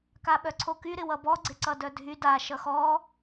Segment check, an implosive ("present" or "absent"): present